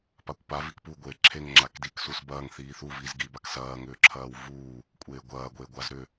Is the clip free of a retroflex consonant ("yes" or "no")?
yes